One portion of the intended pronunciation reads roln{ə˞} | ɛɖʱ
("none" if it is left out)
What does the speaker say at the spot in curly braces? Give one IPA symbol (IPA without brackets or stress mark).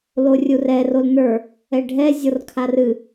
ə˞